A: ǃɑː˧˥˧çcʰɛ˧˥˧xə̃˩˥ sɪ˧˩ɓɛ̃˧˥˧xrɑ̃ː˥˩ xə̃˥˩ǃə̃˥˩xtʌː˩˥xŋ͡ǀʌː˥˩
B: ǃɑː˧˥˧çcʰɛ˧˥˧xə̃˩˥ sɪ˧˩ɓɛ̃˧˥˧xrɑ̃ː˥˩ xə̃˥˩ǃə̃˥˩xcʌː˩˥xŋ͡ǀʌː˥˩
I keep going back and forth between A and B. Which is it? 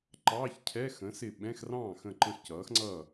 B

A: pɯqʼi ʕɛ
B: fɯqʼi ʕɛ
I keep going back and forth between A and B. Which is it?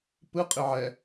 A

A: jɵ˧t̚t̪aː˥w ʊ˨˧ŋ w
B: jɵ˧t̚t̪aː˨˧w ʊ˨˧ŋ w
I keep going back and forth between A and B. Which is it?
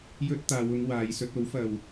B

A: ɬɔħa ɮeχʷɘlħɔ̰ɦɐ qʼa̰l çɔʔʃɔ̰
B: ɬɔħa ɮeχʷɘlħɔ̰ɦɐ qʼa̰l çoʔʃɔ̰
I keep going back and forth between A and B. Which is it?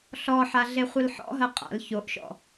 B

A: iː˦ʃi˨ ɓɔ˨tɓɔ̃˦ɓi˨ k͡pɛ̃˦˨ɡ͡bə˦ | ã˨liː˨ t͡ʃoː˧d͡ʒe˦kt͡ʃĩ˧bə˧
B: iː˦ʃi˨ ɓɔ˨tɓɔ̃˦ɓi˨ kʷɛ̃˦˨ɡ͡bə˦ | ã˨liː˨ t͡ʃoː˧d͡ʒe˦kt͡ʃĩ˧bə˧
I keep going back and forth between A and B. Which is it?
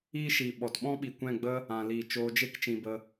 B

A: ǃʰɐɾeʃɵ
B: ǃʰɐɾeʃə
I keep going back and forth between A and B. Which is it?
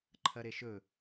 A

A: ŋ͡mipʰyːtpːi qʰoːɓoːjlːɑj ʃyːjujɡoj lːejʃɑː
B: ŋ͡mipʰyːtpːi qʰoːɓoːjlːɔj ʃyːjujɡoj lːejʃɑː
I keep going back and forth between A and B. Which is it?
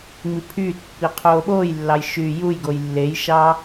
A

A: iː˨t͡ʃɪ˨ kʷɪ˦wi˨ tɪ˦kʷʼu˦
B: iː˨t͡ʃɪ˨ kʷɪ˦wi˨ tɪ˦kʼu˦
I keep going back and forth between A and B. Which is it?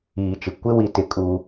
B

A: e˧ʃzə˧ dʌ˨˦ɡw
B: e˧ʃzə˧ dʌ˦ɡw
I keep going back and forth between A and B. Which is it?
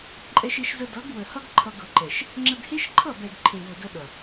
A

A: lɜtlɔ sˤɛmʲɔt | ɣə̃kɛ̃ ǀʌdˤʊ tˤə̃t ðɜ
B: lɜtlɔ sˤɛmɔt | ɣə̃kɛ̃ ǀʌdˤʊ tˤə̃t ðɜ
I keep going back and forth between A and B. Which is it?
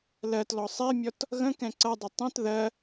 A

